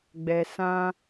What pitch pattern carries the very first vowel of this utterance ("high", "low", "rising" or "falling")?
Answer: low